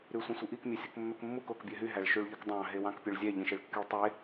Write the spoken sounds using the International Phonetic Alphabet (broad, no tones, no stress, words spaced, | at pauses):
ɾysʷĩsʷiʔik mʲesʲukmːøkmːuk okbʲøɦy ɦæɭʃyɭʎɯkdˤɑ̃ ɦewɑ̃kpʲøɭzʲæ ʎĩʃeɭkːyɭtˤe